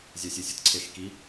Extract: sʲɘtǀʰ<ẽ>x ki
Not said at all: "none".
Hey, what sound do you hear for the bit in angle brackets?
e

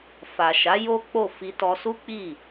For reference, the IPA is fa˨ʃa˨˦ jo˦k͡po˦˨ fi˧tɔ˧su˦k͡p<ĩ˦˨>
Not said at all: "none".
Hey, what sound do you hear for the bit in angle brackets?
i˦˨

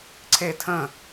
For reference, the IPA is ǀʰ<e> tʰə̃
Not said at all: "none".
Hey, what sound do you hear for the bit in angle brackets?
e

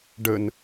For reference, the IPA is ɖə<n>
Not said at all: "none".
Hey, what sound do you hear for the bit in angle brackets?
n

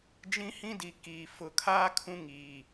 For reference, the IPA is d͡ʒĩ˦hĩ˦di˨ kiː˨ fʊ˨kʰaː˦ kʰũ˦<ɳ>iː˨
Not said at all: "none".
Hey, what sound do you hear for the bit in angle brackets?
ŋ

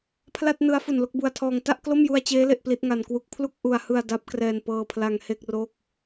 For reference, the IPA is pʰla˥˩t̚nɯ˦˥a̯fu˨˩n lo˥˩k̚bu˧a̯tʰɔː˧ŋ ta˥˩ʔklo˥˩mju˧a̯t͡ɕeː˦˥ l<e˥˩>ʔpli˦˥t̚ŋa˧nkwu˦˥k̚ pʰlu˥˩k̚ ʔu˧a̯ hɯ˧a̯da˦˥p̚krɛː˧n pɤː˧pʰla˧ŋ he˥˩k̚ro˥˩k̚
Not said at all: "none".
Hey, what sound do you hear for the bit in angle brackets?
e˥˩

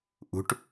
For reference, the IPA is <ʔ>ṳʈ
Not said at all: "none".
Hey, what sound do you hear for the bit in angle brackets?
ʔ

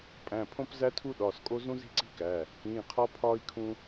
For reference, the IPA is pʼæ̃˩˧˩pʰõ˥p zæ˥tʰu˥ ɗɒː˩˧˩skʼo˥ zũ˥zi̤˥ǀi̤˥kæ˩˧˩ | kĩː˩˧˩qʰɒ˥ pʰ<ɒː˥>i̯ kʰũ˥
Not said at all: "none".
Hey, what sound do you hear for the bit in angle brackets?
ɒː˥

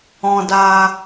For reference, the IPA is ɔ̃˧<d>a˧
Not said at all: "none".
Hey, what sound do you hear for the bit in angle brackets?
d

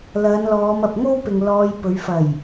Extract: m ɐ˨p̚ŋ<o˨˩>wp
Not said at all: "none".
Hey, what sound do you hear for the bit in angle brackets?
o˥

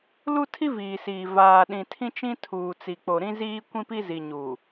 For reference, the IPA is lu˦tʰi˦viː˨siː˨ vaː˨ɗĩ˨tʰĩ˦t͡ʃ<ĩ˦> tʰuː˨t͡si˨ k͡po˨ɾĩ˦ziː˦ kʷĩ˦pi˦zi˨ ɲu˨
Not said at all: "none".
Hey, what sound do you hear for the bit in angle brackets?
ĩ˦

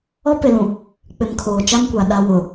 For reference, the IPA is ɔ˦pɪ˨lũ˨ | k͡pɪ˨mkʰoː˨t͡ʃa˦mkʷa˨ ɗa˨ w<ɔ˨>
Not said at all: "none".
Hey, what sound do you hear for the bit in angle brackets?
ʊ˨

